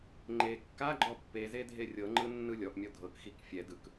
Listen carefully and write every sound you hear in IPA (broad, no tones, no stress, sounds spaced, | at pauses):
ŋ͡ǃ e kː a ɡ͡ǃ ɔ pː e z e dʱ e rʲ ɤ ŋ͡ǃ ɯ nː ɯ lʲ ɔ ʔ mʲ ɔ dʱ ɤ k x i k fʲ ɛ d ɯ k